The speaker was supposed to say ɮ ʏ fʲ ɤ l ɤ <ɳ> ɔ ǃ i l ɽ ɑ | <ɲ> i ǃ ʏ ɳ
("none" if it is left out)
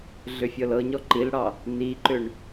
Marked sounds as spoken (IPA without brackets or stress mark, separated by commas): ɲ, n̪